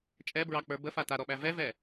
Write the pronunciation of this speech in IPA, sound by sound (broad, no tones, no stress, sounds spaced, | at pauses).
t͡ʃʼ ɛ b ɹ ɑ k͡p ə˞ b ə f a t a ɾ ɔ ɓ æ v ɛ v ɛ